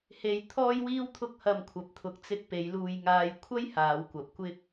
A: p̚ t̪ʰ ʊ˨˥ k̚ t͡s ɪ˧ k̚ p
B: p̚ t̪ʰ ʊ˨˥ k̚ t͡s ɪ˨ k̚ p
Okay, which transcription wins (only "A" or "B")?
A